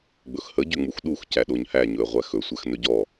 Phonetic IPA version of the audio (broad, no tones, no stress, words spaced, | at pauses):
ɡ͡bɵxhə ɟʏŋ͡muxɗux cæɗoɲhæ ɲɵə̯ʁʷæxɵ sʷæxnɵɟɔ